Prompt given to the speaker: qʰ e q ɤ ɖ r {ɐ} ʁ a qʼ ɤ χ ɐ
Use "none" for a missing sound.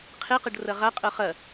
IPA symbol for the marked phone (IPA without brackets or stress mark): ɐ